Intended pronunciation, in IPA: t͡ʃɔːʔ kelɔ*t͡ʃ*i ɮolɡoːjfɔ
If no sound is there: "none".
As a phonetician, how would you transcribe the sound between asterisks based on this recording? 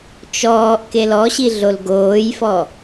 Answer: ɕ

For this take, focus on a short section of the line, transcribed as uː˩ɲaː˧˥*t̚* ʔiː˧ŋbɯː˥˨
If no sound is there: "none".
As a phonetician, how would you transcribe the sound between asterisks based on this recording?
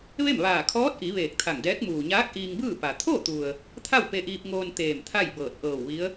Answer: k̚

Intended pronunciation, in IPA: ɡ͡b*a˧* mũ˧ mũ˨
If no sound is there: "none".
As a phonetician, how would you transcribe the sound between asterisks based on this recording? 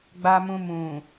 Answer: a˧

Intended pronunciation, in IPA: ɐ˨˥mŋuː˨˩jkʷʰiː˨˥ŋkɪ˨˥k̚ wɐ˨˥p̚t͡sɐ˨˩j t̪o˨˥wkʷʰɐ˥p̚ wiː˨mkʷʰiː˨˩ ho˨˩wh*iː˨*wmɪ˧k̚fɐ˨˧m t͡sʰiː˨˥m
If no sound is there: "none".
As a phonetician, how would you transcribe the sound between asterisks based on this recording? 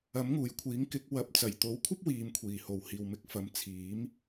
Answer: iː˨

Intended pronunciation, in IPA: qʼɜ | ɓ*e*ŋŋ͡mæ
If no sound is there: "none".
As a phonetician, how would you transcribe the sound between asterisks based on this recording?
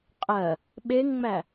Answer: e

